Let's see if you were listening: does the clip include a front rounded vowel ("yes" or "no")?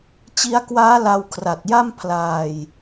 no